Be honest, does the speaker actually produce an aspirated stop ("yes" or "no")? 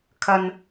yes